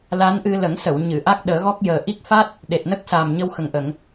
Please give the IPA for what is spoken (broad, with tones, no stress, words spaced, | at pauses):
la˧˥nʔɨ˧ lə˨˩˦ŋsə˨˩˨w ɲɨ˨˩˨ ʔa˦˥k̚ɗəː˨˩˦ɣɔ˦˥k̚jəː˨˩ ʔi˦˥k̚ fa˦˥t̚ | ɗe˨˩t̚nə˦˥k̚ saː˨˩mɲə˧wxə˨˩ŋʔə˨˩˨ŋ